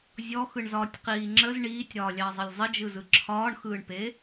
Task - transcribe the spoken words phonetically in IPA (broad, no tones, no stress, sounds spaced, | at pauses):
zʲ ɔ x ɯ ɳ z ɒː tʲ q iː ŋ͡ǁ ə z ɳ iː tʲ ɾ ɒː lʲ ɑ zˤ ə lʲ zˤ ə d͡ʒ ɯ z ɯ ǁʰ ɒː ɳ x ɯː ɳ p e